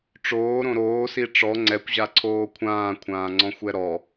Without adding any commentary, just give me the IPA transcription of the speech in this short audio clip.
ʈ͡ʂoːɾõ ɾoːsi ʈ͡ʂɔ ŋ͡ǀɛkʷʑaǀʰoː kʷʰãːkʷʰãːŋ͡ǀɔ̃xʷɛ ɾɔ

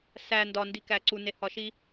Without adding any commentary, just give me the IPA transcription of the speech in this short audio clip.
sæ ndɒndikæ ǀunehɒʃi

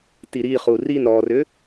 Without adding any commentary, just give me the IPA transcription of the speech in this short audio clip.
tiɾiχu rin ɾɔrʏ

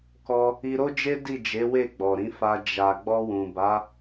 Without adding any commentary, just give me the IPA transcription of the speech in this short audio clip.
kɔ˦ | i˧ɾo˦d͡ʒe˦ di˦˨d͡ʒe˨˦ we˦˨ɡ͡bɔ˨ɾĩ˨˦fa˧ d͡ʒa˨ ɡ͡bɔ˧wũ˨ ba˨˦

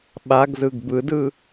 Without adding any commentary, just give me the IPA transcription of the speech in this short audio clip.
ɓaɡzɯɡ bɯdɯ

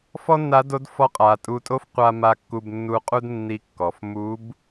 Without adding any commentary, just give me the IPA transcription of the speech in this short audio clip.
fɔ˥nːa˧˥do˧˥dfɔ˧˥ qʼa˩˧tʼu˧tʼo˥f qʷa˧ ma˧kːu˧bnːu˧qʼu˥d nːi˧˥kːɔ˩˧f mu˧˥b

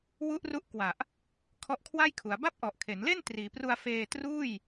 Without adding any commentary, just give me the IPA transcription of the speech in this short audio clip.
wu˦˥ʔru˦˥ʔkwa˨˩ʔ | kʰɔ˦˥ʔkʰwa˥˩jkʰu˩˦a̯ ba˥˩p̚ʔɔ˨˩ʔkʰe˩˦nle˥˩n triː˩˦pru˧a̯ feː˧truː˥˩j

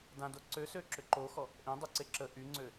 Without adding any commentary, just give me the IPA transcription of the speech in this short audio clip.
dãdo ǀøsø ǁʏǃoxɔ | ʔẽdˤʏ ǀeǁə ʔyŋ͡ǀø

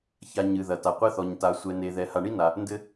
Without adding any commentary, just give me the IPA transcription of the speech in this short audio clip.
ça˨ ɲɨ˩ðɐ˩ ta˩ qʷɛ˥θɔ˨ɲ ta˨ sʷɛ˨ne˨ðɛ˨ ha˨ɳi˥na˩ | ndɘ˥

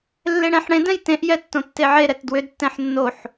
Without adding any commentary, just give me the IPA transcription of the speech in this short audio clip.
lːeɽɛ̃ħɽẽd ɛ̃jtẽʔjɛ tːõtːeʕe ɾɛtdwʏdtːɛ̃ħ nːoħ

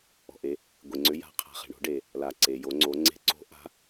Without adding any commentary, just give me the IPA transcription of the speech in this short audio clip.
ɔ̤˩ʔe˩˧ | ɡʷe˩ŋ͡ǀʏ˩˧ ja̤˩˧ qʰa̤˩χe̤˩ɳo̤˩˧ɖe˩ | la˩ ǀe˩jo˩˧ŋ͡ǀo˩˧ ŋ͡ǀe̤˩˧ǀo̤˩˧ʔa̤˩˧

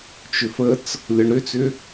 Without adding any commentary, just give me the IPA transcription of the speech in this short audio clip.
t͡ʃʏfət͡s | lʲɔɳɾʏt͡sʏ

